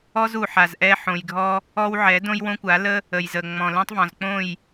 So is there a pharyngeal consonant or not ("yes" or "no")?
yes